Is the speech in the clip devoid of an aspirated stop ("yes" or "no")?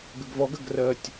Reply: yes